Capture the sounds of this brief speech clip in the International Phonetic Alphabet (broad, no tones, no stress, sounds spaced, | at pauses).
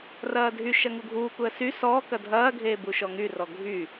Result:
r ɐː dʱ y ʃ ɐ ŋ u ɡʱ uː k u ə̯ s y s ɔː k ɐ dʱ ɐː ɡʱ eː b u ʃ ɔ ŋ y r ɔ ɡʱ y